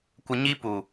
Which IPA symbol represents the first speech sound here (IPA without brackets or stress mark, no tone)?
kʷ